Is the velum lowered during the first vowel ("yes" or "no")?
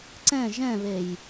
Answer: yes